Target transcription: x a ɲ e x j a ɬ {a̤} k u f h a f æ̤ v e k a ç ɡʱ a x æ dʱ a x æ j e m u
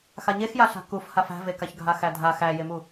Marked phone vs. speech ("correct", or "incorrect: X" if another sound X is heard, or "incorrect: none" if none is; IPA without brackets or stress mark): correct